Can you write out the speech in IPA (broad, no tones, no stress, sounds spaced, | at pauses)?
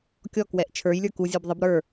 kʲ ɔ k w ɛ ʔ t͡ʃʰ ə˞ j lʲ ə˞ k u zʲ ə˞ b ðˤ ə b ɾ ə˞